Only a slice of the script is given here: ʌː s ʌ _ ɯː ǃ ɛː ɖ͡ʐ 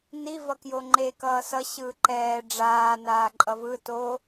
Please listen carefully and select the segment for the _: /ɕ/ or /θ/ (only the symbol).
ɕ